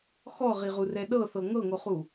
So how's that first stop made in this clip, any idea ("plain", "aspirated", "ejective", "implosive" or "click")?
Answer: implosive